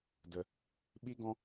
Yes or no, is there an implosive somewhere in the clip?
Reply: yes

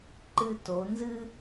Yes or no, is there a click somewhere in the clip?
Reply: yes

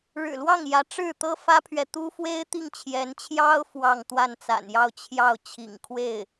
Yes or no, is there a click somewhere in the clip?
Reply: no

